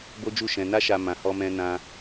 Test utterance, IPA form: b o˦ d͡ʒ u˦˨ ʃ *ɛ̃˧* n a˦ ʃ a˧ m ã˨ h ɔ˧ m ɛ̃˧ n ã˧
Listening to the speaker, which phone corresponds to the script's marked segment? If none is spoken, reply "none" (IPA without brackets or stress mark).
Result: ɛ̃˧